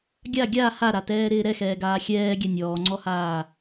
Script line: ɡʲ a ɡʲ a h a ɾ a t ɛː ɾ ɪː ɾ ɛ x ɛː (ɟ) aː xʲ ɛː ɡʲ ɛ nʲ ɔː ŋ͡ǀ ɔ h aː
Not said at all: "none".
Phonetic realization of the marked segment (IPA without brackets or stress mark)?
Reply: ɡ